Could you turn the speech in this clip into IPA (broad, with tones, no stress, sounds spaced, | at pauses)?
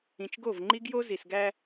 ĩ˨ t͡ʃ ɡ o˦˨ v ŋ͡ǃ i˦ ɡ j o˦ z i˨ s ɡ æ˦